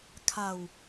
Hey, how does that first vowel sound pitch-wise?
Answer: low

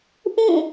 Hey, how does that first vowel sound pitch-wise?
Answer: falling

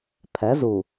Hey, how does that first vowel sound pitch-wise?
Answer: rising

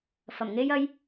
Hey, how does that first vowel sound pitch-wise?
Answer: low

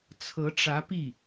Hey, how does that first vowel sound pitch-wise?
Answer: rising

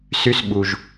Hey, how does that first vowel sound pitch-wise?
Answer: high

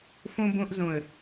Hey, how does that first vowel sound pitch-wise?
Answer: high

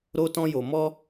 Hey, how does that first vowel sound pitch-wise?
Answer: high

